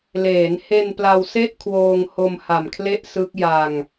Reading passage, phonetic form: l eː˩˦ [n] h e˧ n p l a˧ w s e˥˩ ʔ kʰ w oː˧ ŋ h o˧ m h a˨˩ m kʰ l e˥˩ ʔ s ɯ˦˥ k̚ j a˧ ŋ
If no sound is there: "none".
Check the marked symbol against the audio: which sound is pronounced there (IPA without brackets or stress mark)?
n